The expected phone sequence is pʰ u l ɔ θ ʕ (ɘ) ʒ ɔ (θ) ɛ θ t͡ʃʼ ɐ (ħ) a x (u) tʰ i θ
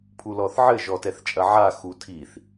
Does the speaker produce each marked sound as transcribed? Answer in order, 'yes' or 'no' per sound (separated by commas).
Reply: yes, no, no, yes